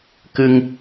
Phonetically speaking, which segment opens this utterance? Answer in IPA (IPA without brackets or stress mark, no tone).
k